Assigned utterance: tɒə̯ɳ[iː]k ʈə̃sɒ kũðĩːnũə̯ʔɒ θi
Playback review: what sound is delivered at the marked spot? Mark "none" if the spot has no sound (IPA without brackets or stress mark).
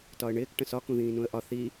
ɪː